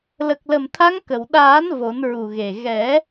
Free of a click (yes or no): yes